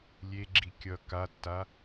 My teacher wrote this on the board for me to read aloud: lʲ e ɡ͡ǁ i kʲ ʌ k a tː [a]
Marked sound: correct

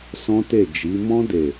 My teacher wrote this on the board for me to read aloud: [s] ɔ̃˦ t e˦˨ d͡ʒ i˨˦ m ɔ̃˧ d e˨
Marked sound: correct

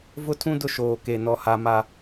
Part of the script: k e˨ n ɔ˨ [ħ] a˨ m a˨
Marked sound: incorrect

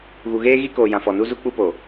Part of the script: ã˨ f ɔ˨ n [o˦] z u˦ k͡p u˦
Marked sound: incorrect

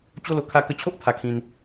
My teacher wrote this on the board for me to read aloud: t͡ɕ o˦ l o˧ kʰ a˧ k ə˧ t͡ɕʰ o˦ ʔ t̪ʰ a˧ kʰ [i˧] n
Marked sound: incorrect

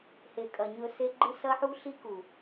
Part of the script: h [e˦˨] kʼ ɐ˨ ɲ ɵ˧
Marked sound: incorrect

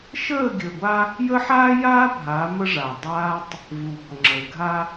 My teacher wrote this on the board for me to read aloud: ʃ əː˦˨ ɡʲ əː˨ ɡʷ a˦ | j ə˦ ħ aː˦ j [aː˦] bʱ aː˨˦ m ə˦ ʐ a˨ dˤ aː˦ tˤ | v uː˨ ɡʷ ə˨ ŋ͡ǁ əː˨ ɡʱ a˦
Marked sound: correct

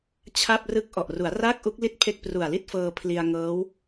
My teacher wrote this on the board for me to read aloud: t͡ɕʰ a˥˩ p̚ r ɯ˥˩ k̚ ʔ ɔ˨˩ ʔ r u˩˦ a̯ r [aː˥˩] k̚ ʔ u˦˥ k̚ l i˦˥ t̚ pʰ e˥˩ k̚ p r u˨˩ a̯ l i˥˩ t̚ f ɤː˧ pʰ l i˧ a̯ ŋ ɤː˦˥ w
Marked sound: correct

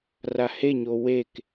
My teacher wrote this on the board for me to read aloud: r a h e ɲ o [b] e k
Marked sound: incorrect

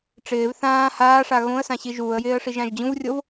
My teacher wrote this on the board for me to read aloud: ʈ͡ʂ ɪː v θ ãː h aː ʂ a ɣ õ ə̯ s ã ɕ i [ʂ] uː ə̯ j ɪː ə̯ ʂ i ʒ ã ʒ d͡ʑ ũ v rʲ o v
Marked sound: incorrect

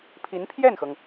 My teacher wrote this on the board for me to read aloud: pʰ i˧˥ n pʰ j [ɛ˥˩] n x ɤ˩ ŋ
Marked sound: correct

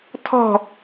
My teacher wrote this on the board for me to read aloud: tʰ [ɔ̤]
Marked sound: correct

